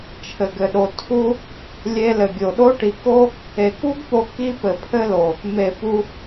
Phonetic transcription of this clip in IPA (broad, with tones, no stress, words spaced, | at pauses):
t͡ʃʰɘ˨ɡɘ˨ɗo˨ tʰu˦ | lʲe˧lɘ˨ɡʲo˨ɗo˦ ʈi˨ko˦ | e˨ku˦ɡpo˧ ki˦pɘ˨ pʰɘ˦lo˨ | me˨ pu˧